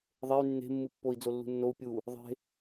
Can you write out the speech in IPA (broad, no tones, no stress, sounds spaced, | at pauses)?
ðˤ e y̯ nː e̤ mː ɯ pː o i̯ d͡z o lː ṳ nː o u̯ pʲ u | ðˤ e̤